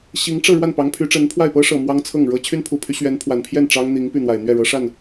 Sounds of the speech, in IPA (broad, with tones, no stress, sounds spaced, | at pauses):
ɕ i˧˥ ŋ ʈ͡ʂ ɤ˥˧ ɻ w a˥˩ n p ɑ˧˥ ŋ pʰ y˧˥ ʈ͡ʂ ə˧˥ n pʰ w a˥˩ ɪ̯ p ɤ˥ ʂ ɤ˨˩ m w ɑ˥ ŋ t͡sʰ ɤ˥˩ ŋ ɻ ɤ˥ t͡ɕʰ y˥ n pʰ u˨˩ pʰ y˧˥ ɕ ɥ ɛ˧˥ n pʰ w a˨˩ n pʰ j ɛ˥˩ n ʈ͡ʂ ɑ˥ ŋ n̪ i˧˥ ŋ p y˥˩ n̪ w a˨˩ ɪ̯ n̪ ɥ ɛ˥˩ ɻ ɤ˧˥ ʂ a˥˩ n